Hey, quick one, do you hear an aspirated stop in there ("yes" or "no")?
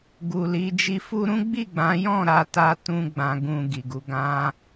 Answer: no